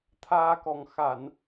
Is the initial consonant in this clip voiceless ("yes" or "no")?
yes